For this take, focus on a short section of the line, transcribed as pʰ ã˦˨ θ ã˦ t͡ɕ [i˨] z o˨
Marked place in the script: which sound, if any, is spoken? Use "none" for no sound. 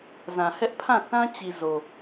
i˨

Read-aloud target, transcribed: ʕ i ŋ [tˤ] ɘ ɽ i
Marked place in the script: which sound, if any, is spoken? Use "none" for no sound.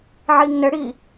n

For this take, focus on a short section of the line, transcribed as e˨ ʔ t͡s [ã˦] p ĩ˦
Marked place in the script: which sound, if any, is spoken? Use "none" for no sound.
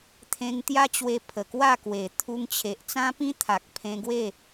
ã˦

